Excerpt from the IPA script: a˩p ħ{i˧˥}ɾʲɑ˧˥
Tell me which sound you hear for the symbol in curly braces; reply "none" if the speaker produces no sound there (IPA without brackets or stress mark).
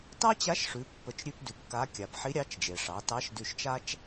i˧˥